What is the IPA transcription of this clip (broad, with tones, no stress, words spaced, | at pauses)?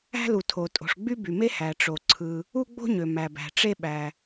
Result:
æ̤˥lu˩tʰo˩ tʼo̤˩ʂɡ͡by˥by˩me˥ hæ˩ʈ͡ʂo˩ ǀʰɯ˩ | u˥ɡ͡bo̤˥ɲø˩ mæ˩bæ̤˩ʈ͡ʂe˥ɓæ˩